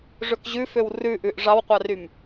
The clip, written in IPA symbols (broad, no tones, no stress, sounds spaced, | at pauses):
ʐ ɵ k ʑ ʉ f ø w r ʉ ʔ ʉ ʔ ʐ ɑ w qʷ ɑ r y m